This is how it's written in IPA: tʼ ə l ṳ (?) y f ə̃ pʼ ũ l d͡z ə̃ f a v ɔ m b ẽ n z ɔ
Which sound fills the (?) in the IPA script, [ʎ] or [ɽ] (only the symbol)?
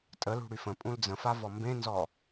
ɽ